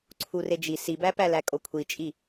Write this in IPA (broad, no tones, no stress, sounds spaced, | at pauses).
ǀʰ u r e d͡ʒ i s i b æ p æ l æ kʼ o kʷʰ i t͡ʃʼ i